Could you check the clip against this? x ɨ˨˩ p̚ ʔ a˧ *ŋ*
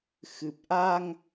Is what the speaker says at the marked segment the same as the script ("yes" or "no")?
yes